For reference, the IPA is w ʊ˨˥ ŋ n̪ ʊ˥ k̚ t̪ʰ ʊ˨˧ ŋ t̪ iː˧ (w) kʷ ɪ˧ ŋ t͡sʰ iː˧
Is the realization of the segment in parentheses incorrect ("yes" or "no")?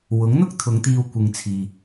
no